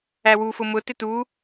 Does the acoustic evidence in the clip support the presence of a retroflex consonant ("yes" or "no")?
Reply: no